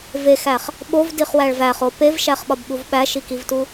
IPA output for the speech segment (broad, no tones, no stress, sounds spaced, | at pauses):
v e x æ χ | ɓ o v d i χ w æ ɭ v æ χ o p e v ʃ æ χ ɓ ɒ b ɓ u v ɓ æ ʃ i k i v t u